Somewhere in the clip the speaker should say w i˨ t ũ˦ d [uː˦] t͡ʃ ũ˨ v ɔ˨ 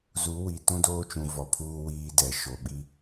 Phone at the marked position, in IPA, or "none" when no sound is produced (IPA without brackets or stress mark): oː˦